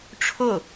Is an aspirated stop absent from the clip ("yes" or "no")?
no